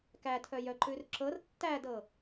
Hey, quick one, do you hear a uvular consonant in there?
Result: no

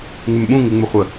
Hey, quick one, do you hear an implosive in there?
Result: yes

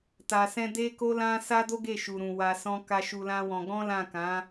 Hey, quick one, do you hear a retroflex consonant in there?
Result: no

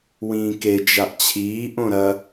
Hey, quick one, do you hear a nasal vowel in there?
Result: yes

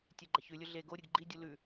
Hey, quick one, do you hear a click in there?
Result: yes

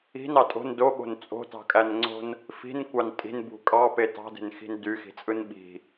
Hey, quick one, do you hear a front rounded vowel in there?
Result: yes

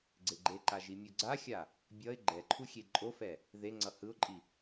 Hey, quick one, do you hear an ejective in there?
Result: yes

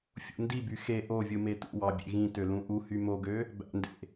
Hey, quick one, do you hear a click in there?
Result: no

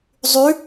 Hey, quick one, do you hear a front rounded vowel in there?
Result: yes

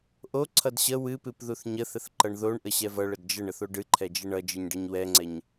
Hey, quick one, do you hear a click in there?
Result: yes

